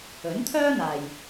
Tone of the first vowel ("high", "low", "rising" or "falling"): rising